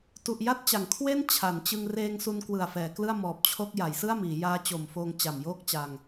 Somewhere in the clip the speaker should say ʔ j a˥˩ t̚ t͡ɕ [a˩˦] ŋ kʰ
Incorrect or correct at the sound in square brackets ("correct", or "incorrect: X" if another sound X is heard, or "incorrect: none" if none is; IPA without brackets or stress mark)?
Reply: correct